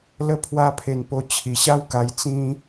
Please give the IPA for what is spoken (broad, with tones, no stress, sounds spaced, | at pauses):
l ə˦ pʰ w a˦ pʰ e˧ n p o˧ t͡ɕʰ i˨˩ ɕ a˦ w k a˧ j t͡s ĩ˦